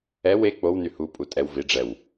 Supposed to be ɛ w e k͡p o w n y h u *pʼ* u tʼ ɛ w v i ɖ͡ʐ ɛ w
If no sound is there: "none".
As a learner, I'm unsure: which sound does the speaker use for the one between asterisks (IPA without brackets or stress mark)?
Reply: pʼ